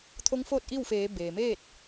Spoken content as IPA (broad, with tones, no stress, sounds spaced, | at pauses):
t̪ʰ o˧˥ ŋ f oː˥˨ t̚ ʔ i˥˨ w f eː˩˧ b eː˩ m eː˥˨ t̚